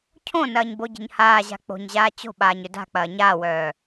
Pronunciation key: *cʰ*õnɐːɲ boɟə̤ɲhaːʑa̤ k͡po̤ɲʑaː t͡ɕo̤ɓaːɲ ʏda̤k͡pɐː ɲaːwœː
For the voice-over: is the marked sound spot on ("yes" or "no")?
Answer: yes